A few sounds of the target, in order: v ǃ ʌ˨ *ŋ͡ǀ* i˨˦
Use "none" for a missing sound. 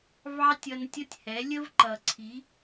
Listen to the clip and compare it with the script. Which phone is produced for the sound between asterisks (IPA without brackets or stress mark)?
ǀʰ